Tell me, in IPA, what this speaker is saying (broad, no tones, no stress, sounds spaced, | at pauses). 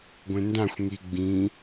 ɡʷ ẽ n d ã xʷ ŋ i ɡ͡b ĩ